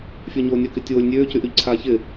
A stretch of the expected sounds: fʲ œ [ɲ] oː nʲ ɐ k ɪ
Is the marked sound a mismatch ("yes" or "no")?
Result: no